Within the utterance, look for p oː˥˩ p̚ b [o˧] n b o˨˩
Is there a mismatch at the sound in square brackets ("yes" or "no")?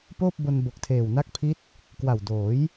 no